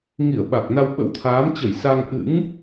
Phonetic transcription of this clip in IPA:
ŋ i˧˩ ə̯ ɓ a˨˩ k̚ n a˧ w ɓ ə̰˧˥ w t̪ʰ aː˨˦ m t͡ɕ ə˧˩ j s a˧ ŋ ʔ ɨ̰˧˥ ŋ

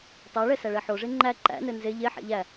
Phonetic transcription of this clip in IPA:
tˤ æ ɭ ɛ s æ ɭ ɛ ħ o ʐ e ŋ͡ǃ æ ǃ æ̰ n ɘ n z e ʎ e ħ ɛ̰ ʎ æ

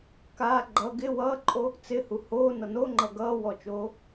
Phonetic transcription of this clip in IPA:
k aː ɡ͡ǃ ʌ ɡ ɪ w ʌː ǃʼ o | t͡s ɪ h u h oː n ʌ n o ŋ͡ǃ ʌ ɡ ʌː w ɔ t͡ʃ oː

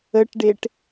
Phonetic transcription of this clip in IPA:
ə ʈ ɖ e ʈ

